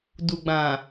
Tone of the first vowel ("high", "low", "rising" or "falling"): low